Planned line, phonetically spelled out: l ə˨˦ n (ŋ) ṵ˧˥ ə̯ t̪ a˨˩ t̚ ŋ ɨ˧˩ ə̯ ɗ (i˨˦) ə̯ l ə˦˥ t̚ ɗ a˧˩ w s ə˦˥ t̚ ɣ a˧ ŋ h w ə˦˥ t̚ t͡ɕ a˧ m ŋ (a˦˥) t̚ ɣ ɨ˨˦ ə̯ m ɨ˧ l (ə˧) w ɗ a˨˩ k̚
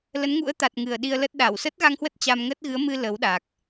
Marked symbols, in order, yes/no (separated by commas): yes, no, no, no